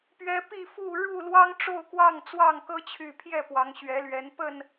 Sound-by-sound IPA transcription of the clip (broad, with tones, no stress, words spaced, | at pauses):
pɥɛ˨˦ pi˥˨fu˥˨ ɻu˥˨ lwɑ˦ŋʈ͡ʂo˥˨ʊ̯kwɑ˥˨ŋ t͡swɑ˥˨ŋkɤ˦ t͡ɕʰy˨˩pʰjɛ˥˨ pwɑ˨˦ŋ ɕɥɛ˨˦lɥɛ˨˦n pə˥˨n